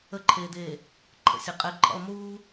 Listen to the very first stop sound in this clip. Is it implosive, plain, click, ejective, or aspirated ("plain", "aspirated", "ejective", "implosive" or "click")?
click